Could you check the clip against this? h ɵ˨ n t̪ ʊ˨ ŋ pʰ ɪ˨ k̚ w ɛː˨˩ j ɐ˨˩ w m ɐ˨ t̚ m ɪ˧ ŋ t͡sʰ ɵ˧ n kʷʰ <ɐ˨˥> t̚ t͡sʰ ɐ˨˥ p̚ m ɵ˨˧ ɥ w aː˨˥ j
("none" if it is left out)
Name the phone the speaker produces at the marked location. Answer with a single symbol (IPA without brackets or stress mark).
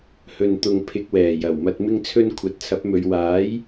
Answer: ɐ˨˥